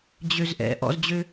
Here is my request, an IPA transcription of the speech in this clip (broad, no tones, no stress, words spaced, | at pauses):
d͡ʑøzʔɛ̰ ʔɔ̰zd͡ʑø